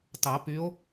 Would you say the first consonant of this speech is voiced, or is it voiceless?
voiceless